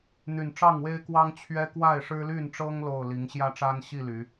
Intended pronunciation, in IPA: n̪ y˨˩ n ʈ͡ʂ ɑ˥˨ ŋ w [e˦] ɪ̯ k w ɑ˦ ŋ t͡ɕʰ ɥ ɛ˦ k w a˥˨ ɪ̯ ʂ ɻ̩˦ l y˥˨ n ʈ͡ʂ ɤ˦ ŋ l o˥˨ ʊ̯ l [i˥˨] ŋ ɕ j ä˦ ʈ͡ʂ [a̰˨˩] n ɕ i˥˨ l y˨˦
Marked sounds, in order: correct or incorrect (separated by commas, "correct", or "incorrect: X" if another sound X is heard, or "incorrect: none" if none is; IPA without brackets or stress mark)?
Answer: correct, incorrect: i˨˦, incorrect: a˦